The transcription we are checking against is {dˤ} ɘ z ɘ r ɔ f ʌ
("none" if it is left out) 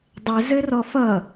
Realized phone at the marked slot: dˤ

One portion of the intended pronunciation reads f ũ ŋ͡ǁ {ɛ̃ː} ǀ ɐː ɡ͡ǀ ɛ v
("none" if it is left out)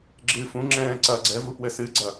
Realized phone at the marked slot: ɛ̃ː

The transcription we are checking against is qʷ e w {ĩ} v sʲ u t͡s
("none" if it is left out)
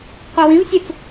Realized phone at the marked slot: ĩ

